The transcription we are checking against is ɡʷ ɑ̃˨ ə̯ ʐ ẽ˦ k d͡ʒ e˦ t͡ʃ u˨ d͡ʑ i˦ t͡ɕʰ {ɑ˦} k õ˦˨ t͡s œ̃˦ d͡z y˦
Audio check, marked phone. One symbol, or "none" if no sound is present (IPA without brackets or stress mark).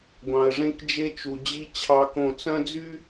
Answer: ɑ˦